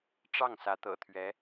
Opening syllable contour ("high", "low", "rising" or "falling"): falling